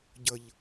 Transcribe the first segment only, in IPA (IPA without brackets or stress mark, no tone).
ɟ